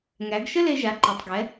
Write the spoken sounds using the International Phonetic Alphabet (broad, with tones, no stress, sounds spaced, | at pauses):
ŋ æ˩˧ ɡ ʃ ə˥ l e˧ ʒ a˩˧ ǃ e˩ tˤ ɡ ɛ˩˧